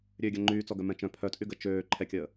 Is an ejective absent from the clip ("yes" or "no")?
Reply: no